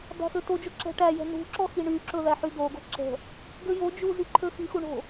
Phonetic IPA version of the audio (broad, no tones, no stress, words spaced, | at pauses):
bæ̤xøtod͡ʒo ǁɛ̤ʈæjɛ̤ nṳ ǁɔxiɳyǁɵ ðæħyd̪oɡo̤ ǁɛ̤ | ɡøjod͡ʒu ziǃʰøxixu ɳo̤